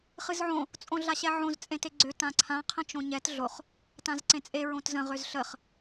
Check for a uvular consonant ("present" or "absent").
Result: present